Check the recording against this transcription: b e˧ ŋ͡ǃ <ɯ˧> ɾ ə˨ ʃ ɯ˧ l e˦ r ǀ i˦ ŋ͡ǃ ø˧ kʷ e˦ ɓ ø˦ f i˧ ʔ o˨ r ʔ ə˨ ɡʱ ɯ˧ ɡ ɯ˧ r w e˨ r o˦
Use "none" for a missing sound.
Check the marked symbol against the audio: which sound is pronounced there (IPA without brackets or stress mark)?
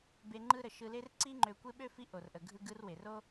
ɯ˧